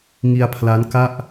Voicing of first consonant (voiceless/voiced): voiced